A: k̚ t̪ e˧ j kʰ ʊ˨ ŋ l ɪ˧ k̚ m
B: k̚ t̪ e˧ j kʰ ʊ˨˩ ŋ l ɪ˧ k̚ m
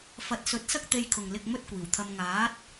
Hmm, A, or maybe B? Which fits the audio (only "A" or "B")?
A